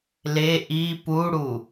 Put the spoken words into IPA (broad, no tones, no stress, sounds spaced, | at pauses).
l e ʔ i p u ɽ u